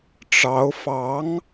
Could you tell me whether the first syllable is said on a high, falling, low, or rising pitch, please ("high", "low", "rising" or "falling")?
rising